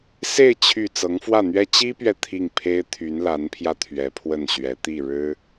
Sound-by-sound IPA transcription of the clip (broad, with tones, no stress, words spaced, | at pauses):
se˥˧ɪ̯ t͡ɕʰy˥˩ t͡sɤ˧˥ŋfwä˥˩n̪ɥɛ˥ t͡ɕi˥pɥɛ˨ t̪ʰi˥˩ŋpʰe˥ɪ̯ t̪ʰy˧˥nla˧˥npʰjä˧ t̪ʰɥɛ˧˥pʰwə˥˩nɕɥɛ˧˥ t̪i˥˩ ɻɻ̩˥